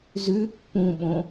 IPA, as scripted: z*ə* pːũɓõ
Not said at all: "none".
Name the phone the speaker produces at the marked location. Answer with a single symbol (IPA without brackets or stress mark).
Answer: ʉ